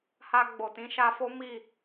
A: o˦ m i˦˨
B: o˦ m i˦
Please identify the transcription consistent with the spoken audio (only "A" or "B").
A